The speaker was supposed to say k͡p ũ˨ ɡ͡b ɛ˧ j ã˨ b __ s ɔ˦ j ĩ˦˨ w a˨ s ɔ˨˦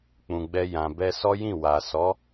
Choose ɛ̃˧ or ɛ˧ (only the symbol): ɛ˧